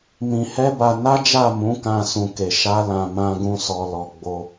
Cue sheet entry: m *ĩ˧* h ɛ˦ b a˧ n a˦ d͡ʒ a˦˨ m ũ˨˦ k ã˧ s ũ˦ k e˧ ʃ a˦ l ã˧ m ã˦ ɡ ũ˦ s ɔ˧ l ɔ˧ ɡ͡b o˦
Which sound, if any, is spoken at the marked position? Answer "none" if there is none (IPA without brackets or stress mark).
ĩ˧